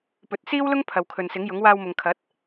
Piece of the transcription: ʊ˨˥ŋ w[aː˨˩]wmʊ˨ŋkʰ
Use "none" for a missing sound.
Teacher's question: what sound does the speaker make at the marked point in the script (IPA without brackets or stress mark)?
aː˧